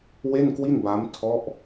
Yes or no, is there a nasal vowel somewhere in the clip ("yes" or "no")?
no